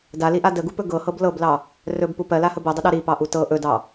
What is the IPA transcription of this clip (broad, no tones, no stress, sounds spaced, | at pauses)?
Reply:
d a l i ʔ a d ə ɡ u p ɵ ɡ ɤ h ɤ b l ɤ b l ɑ | r ɵ b p u p ɜ l a h ə b ɤ dˤ ə ɗ ɑ ɾ i p ɑ ʔ u t ɤ ʔ ɵ d ɑ